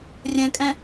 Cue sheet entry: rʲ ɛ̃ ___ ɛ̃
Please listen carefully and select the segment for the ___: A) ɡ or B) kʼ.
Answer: B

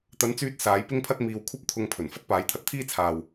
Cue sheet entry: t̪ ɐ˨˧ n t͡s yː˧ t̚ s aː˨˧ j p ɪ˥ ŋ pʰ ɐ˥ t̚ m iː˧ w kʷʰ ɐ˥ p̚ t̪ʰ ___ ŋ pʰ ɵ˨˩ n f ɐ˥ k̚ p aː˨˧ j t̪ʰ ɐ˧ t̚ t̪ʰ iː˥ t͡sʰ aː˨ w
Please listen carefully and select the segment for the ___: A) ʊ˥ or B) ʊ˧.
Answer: B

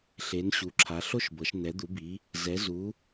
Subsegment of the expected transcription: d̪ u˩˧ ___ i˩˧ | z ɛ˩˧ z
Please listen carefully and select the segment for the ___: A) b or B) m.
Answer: A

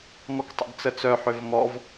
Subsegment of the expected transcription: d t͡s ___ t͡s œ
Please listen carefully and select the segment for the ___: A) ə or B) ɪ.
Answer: A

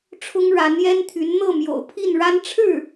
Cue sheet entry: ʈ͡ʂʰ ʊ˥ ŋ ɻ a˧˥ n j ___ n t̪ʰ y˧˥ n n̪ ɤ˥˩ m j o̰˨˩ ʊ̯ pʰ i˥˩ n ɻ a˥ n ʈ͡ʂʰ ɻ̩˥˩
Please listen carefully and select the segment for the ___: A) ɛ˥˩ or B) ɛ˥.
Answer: B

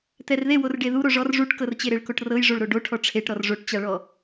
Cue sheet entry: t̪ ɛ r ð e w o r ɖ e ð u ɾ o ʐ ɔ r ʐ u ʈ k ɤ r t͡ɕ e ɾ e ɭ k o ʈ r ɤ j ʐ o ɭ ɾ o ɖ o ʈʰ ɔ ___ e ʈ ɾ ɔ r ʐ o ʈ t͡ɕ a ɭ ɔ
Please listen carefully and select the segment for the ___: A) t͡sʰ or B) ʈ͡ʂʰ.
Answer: B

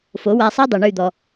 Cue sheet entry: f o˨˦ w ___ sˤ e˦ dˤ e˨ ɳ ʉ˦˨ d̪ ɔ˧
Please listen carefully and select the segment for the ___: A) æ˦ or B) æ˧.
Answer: B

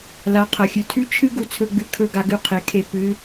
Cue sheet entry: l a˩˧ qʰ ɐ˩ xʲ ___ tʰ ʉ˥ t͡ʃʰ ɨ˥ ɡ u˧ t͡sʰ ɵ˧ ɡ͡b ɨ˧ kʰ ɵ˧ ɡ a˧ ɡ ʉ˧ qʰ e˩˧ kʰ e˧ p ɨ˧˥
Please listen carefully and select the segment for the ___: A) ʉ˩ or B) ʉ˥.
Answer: A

